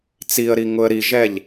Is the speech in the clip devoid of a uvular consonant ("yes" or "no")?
yes